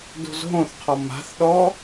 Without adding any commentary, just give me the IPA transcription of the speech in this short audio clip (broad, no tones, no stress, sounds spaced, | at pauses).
d o̤ z ɦ õ θ qʰ ɔ m a̤ θ ɗ ɔ